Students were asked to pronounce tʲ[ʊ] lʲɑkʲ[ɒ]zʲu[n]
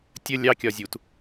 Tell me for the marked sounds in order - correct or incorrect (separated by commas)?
incorrect, correct, incorrect